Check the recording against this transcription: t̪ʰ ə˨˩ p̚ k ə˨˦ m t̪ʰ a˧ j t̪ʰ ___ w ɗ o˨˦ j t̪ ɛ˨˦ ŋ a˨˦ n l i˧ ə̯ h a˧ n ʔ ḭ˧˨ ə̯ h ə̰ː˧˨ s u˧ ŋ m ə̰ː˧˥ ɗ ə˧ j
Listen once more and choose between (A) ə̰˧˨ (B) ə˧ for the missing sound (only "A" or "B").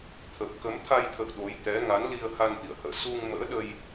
A